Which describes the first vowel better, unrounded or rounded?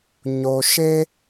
rounded